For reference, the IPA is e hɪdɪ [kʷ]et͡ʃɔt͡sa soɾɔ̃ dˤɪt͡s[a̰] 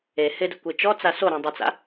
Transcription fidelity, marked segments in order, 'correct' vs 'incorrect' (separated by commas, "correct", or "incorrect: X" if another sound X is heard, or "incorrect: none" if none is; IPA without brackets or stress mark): correct, correct